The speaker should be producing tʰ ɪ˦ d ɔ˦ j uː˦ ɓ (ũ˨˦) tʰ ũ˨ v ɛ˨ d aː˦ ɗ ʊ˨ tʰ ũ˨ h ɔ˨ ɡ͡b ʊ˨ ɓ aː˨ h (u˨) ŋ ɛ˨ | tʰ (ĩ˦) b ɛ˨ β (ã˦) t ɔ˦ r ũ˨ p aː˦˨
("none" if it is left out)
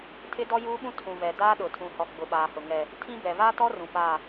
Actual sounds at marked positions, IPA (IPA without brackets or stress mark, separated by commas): ũ˦, ʊ˨, ĩ˦, a˦